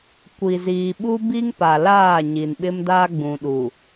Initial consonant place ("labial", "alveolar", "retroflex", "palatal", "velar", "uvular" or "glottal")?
velar